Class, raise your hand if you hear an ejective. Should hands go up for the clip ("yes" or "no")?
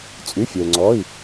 yes